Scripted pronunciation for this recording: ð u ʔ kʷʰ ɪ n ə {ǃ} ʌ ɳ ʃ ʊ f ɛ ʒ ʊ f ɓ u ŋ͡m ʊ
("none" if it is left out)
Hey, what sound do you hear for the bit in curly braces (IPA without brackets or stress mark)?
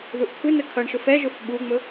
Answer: kʰ